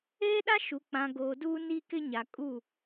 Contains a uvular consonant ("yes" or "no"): no